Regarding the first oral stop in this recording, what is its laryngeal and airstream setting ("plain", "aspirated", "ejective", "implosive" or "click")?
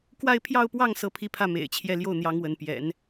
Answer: plain